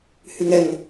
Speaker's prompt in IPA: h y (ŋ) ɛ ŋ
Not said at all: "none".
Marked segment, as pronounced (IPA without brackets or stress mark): ŋ